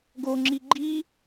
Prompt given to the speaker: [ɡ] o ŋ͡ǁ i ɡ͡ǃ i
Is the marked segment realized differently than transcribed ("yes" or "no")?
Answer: no